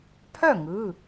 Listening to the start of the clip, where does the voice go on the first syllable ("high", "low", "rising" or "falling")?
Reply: falling